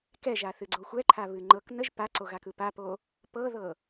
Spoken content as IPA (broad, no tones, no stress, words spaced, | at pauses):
kɛʒaθɨɡ͡ǀo xʷɛǃʰaβɨ ŋ͡ǃɤk nəʒ paǀoɣakɯ papo | pɤðɤ